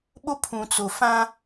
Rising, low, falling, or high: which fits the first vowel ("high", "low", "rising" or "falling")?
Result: high